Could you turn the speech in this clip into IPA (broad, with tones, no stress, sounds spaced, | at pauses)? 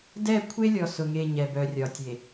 d ɛ˦˨ kʷʰ e˦ lʲ ɔ˨ s ʊ˨ ŋ e˨ ɲ ɛ˨ b œ˨ rʲ ɒ˨ tʲ e˨